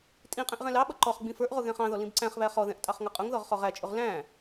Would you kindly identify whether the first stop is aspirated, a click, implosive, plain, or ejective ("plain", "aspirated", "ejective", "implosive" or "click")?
ejective